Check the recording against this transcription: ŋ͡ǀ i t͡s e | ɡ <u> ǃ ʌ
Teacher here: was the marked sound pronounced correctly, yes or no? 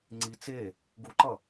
yes